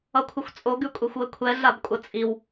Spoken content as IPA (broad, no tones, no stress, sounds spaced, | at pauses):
ʌ kʷʰ ɘ xʷ t͡sʼ o ɡ ʉ kʷʼ ɛ xʷ w ɘ kʷʰ ɛ ɮ a b kʷʼ ʌ t͡sʼ i w